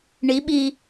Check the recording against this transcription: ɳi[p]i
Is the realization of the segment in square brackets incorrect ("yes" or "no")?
yes